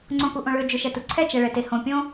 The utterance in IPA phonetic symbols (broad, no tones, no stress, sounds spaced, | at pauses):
ŋ͡ǀ õ k u ʔ õ ɭ ø d͡ʒ ø ʃ ɛ t u ǀʰ ɛ t͡ʃ ɛ ɭ ɛ t e h õ pʲ õ